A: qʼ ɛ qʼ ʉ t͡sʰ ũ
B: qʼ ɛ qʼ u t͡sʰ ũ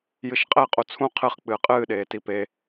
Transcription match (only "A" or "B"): B